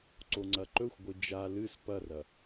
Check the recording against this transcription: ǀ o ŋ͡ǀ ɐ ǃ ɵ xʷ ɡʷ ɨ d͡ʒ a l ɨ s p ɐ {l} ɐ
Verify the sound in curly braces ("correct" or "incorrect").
incorrect